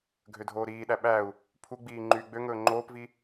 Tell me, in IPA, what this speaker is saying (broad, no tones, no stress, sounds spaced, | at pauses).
ɡʱ ø dʱ oː ɾ iː ɗ æ ɓ æ u̯ | pʰ u ɡ͡b iː ŋ͡ǃ yː ɡ͡b ø ŋ ɵː ŋ͡ǃ oː p v i